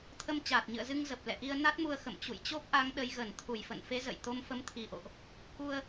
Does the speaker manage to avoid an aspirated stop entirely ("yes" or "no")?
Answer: no